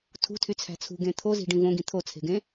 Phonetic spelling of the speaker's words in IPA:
tʰṳtʰyt͡sʰæ̤ t͡sʰṳɡẽ t̪ʰozi̤ɖĩ võɡĩ t̪ʰot͡sʰe̤ɡẽ

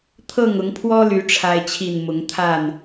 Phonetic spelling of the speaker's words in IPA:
t̪ʰɤ˥˨ŋʊ˨˦ŋpʰwɔ˦ly˨˦ ʈ͡ʂʰa˦ɪ̯t͡ɕʰi˥˨n mʊ˨˦ŋt̪ʰa˥˨n

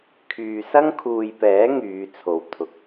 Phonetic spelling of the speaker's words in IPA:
kʰyː˨sɐ˥ŋ kʰuː˨jpɛː˨˥ ŋyː˨˧t͡sʰo˨w t̪ʰʊ˨k̚

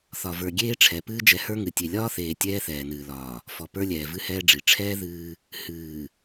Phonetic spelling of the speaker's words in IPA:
θɒ˨və˞˨ɡʲeː˦ʈ͡ʂʰɛ˨ pɨː˦d͡ʒɛ˨˦hə˞˦ŋɨ˨ tʲe˨lʲɒː˦θeː˨ tʲɛː˦θɛː˨nɨː˨lɒː˨ | fɔ˨pə˞˦lʲɛː˨ vɨ˦hɛː˦ɖ͡ʐi˨ ʈ͡ʂʰɛː˦ ðɨː˦ | hɨː˨

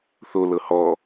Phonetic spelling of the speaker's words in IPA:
θolɤ hɔ

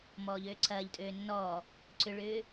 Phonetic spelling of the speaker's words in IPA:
mɔːʎøːǀʰɐːʎtʼøː nːɔ | ǀʏɭʏː

